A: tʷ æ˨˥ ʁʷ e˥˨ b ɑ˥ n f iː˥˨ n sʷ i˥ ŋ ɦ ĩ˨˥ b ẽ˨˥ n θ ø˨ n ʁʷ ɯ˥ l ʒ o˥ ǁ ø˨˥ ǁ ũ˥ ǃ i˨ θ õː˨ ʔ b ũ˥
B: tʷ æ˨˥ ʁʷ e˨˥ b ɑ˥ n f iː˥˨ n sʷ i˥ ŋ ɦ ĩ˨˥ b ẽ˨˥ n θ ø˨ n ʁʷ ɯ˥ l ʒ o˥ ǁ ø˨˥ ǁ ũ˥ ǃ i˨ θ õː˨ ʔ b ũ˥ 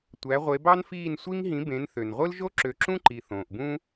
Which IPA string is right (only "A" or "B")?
B